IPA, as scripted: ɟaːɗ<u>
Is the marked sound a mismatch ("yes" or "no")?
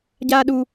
no